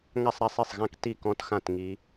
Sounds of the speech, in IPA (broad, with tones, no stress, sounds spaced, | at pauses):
ŋ a˥˧ sˤ ɾ a˥˧ sˤ i˥˩ sˤ ɣ ã˥˩ k t i˥˩ k ɔ̃˦˥ t x ã˥˧ t ŋ i˦˥